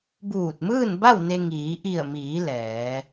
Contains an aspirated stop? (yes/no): no